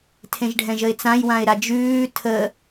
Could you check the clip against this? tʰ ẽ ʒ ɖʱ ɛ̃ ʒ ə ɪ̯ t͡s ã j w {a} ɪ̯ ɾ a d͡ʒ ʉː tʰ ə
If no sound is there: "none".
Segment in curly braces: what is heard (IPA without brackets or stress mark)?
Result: ã